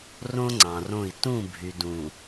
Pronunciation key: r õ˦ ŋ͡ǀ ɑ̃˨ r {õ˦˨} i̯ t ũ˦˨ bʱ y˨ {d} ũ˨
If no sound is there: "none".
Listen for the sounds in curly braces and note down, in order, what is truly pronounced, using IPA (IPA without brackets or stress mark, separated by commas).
õ˦˨, d